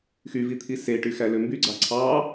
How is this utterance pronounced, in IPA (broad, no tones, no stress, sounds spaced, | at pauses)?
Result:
x y v i t̪ʰ i s e ʈ y x æ l ø m b y ɡ͡ǀ ɑ ǀʰ ɑ